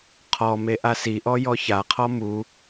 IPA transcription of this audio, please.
qʰ ɔ m e ʔ a s i ʔ ɔ j ɔ ç a qʰ ɔ m u

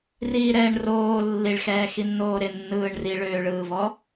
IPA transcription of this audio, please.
r iː ɾ ɛː ɳ r oː lː i ɭ x ɛː x i nː oː ɾ ɪ nː ɯː ɳ r i ɭ øː ɭ ɯː v ɔ

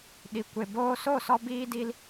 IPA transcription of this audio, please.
ɗ i˨ kʷ e˨ b oː˧ s o˦˨ s ɔ˧ b iː˧ d i˧ l

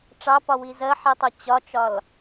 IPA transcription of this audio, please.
ʈ͡ʂ ɑ p ɒ w i z ɜ ħ i tˤ ʌ t͡ɕ ɒ t͡ʃ ɒ l

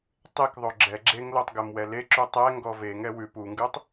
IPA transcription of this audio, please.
tˤ e k ðˤ o ɡ͡ǁ ɛ ɡ͡ǁ e ŋ l o tˤ ɡ ɛ m w ɛ l e ǁ u tˤ ɛ ŋ ɡ ɔ v e ŋ ɛ w ʉ p u ŋ ɡ ʉ tˤ

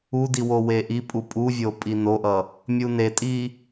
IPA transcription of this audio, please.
u d i w o w e ʔ i pʼ u pʼ u vʲ o pʼ i n o ʔ ʌ | mʲ u n e tʼ i

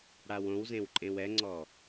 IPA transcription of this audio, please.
ɽ a w õ w z ẽ w ǃʼ ẽ w ɛ ŋ͡ǀ ɔ

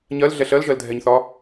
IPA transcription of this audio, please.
ɲ ɜ l ɮ ɛ ɬ ɜ l ʒ ɜ l dʱ ɛ ɲ θ ɒ

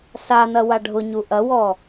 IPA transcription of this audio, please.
s a n̪ ɐ w a ɖʱ ʊ ɲ u ʔ ɐ w ɔ

